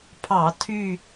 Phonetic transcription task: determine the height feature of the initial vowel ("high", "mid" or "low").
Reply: low